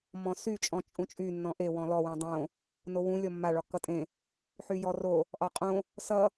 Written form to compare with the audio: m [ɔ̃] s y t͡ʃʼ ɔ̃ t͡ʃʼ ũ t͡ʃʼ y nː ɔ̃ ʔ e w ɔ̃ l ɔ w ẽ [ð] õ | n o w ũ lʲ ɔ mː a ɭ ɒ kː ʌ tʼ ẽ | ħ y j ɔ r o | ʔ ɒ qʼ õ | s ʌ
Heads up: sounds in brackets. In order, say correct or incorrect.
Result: correct, incorrect: dˤ

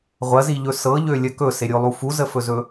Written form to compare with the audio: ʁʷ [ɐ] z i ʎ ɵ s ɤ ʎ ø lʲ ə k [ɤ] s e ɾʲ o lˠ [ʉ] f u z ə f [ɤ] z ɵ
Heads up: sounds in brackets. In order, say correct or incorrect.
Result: correct, incorrect: ɵ, incorrect: u, incorrect: ɵ

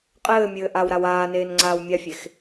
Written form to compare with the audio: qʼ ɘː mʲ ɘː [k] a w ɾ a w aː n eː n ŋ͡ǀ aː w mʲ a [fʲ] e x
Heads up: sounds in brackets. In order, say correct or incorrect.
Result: incorrect: ʔ, correct

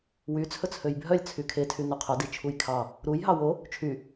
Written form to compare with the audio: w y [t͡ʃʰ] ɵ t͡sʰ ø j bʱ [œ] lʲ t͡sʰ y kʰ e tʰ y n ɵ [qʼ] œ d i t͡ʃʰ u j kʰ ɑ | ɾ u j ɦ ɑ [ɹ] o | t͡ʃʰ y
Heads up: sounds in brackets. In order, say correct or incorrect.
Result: incorrect: t͡sʰ, correct, incorrect: qʰ, incorrect: w

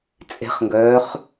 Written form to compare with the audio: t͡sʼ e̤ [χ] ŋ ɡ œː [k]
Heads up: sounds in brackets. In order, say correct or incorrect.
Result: correct, incorrect: χ

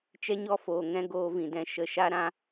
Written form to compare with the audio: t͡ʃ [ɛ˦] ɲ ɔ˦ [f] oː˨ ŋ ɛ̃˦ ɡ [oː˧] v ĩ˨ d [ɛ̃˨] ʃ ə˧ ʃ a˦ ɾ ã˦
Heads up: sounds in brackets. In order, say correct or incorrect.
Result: correct, correct, correct, incorrect: ɛ̃˦˨

